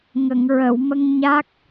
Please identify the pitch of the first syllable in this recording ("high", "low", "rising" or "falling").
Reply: low